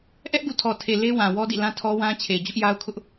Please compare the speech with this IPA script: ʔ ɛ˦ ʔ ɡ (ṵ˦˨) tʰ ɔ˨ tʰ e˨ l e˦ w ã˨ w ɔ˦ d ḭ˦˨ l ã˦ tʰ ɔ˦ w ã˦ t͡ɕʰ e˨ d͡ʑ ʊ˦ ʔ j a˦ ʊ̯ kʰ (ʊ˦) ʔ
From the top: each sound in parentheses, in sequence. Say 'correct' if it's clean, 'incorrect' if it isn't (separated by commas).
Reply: correct, correct